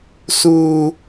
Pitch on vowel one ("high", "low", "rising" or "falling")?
high